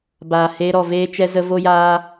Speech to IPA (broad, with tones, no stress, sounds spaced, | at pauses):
b aː˨ h eː˧ ɾ ɔ˨ v eː˦ t͡ʃ ɛ˦ z ə˦ v o˦ j aː˦